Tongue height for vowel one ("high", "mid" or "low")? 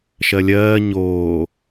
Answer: mid